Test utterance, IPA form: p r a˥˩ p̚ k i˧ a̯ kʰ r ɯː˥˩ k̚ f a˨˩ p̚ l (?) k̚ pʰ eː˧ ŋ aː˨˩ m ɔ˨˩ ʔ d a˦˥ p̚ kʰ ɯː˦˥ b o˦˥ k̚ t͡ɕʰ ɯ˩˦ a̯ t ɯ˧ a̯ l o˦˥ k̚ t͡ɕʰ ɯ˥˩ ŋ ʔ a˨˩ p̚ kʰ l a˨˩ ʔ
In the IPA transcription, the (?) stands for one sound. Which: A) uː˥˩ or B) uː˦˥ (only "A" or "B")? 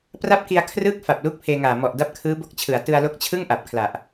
B